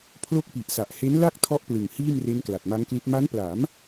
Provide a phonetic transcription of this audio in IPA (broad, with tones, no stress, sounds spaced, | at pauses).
pʰ l o˥˩ k̚ p i˨˩ ʔ s a˨˩ ʔ h e˦˥ n l a˥˩ k̚ tʰ ɔ˦˥ ʔ p l ɯ˨˩ ŋ h iː˥˩ m r e˦˥ n k l a˨˩ t̚ m a˦˥ ŋ k l i˦˥ t̚ m a˦˥ n p l a˩˦ m